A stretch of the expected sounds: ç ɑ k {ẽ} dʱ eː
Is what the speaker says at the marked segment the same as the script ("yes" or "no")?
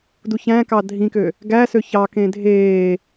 yes